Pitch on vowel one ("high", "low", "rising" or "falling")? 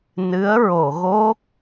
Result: rising